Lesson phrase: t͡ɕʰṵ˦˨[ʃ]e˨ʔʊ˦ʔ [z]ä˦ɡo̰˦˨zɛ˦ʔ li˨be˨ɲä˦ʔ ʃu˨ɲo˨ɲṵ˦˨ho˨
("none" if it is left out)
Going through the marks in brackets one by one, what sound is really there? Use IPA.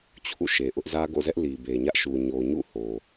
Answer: ʃ, z

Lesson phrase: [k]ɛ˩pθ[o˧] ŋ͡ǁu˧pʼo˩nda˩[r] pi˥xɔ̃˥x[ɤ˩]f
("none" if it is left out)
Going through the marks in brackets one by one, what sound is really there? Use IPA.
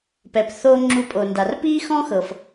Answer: p, o˧, r, ɤ˩

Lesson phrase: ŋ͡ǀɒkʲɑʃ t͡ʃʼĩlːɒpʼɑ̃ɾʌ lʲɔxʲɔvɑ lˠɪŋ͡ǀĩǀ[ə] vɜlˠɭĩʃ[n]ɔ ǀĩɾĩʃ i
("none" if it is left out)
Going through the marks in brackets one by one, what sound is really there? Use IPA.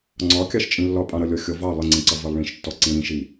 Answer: ʌ, tː

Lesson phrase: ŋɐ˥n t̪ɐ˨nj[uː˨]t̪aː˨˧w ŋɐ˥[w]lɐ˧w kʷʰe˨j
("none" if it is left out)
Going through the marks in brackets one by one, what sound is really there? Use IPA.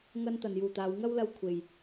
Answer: uː˨, w

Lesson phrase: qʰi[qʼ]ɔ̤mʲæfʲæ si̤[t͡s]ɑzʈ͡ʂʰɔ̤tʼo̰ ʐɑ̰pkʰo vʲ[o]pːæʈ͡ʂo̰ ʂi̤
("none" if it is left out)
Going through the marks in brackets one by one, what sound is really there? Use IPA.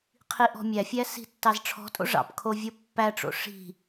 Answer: ʔ, tː, o

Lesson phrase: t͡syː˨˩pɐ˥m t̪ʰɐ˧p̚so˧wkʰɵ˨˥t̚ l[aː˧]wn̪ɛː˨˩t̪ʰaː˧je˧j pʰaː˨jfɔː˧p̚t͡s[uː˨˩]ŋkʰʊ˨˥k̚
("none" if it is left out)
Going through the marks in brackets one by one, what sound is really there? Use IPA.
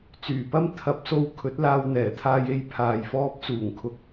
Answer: aː˧, uː˨˩

